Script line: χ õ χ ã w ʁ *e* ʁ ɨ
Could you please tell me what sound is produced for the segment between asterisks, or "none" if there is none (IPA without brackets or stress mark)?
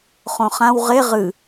e